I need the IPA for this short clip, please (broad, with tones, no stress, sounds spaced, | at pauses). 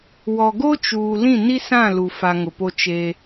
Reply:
w ɔ˨ ɡ o˦ t͡ʃ uː˨ l ĩ˦˨ n i˦ s ã˦˨ l u˨ f a˨ ŋ ʊ˨ p o˦ t͡ʃ eː˦